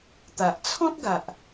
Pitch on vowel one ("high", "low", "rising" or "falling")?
low